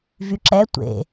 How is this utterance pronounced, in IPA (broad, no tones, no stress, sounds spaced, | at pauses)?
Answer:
v y ǁ ɛ tʷ ḛ